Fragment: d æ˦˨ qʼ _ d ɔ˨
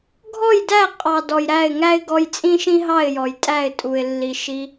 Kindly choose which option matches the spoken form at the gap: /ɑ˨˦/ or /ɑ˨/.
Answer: ɑ˨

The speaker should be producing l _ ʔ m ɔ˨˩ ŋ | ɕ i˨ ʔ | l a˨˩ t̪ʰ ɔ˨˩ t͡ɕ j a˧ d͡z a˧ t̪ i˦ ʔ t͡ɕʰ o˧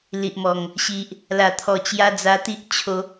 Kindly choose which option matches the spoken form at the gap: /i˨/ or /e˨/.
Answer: i˨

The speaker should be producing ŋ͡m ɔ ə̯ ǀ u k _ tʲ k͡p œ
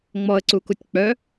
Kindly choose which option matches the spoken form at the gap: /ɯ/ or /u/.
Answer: u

